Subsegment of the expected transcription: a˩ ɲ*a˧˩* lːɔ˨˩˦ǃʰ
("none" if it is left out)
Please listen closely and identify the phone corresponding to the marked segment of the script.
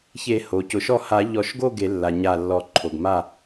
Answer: a˧˩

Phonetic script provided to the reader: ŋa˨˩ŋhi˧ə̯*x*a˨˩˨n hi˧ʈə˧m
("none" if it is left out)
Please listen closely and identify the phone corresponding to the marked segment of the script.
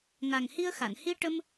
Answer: x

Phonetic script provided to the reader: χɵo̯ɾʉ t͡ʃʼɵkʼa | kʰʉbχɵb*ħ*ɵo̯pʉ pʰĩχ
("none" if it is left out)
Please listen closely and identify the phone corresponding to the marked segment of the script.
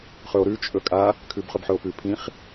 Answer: ħ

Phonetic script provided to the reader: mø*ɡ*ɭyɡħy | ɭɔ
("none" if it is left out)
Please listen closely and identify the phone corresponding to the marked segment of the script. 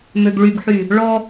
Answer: ɡ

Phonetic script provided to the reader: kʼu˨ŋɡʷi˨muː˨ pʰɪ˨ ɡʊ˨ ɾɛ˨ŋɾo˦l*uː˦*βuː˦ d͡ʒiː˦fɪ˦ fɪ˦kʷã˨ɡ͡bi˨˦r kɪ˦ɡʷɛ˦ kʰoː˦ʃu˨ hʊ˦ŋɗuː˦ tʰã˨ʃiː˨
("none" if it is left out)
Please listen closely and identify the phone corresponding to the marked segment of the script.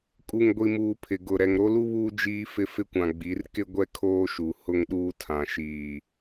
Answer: u˦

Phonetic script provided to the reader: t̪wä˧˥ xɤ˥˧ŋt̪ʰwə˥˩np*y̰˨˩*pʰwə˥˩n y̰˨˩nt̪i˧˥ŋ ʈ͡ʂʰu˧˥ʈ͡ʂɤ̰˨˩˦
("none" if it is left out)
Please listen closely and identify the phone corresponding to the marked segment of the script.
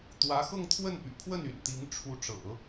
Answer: y̰˨˩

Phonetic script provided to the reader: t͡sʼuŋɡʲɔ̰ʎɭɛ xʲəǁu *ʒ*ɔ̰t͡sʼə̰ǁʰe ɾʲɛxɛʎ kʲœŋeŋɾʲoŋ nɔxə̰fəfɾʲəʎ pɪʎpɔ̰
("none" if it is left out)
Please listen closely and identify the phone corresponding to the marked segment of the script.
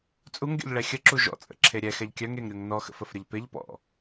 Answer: ʒ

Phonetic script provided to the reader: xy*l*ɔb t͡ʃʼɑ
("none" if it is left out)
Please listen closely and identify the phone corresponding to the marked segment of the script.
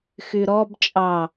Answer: ɾ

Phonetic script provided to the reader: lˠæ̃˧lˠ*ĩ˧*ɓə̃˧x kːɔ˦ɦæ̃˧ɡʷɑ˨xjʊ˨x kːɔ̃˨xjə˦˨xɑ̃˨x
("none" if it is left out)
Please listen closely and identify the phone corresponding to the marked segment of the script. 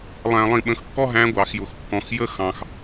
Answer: ĩ˧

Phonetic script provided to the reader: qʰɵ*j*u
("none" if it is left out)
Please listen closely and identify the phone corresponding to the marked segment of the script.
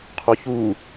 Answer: ç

